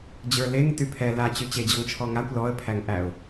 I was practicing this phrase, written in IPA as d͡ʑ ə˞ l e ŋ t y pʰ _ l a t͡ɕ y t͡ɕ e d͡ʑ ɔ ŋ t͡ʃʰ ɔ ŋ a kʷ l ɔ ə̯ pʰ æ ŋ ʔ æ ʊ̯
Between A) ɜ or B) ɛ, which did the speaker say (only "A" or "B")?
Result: B